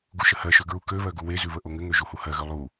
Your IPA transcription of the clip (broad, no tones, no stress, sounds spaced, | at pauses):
ɡ u ʃ ə h ɜ ʃ ø ɡ ɹ u k ø β ɜ ɡ u w e z ʉ β ə ʔ o ŋ ɘ ŋ ø ʒ u h u h ɜ ɣ ø lˠ u